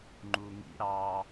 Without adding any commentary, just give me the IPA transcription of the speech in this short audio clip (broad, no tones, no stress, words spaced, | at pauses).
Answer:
ŋ͡ǃuŋḭ ɾɑ